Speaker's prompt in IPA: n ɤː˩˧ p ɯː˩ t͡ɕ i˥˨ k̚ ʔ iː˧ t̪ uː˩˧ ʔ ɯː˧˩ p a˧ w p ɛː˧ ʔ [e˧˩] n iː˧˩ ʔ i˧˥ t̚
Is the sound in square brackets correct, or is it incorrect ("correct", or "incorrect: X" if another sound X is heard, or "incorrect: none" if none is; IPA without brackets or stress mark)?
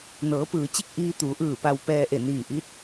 correct